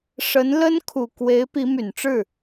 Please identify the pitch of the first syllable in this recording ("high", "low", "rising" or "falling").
rising